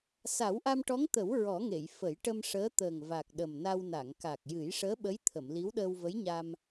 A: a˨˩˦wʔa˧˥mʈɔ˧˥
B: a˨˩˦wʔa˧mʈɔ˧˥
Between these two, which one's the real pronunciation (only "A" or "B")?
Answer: B